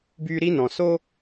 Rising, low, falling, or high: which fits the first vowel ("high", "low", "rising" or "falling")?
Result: high